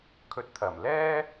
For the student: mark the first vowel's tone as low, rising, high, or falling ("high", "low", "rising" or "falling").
rising